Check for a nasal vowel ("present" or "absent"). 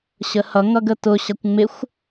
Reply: absent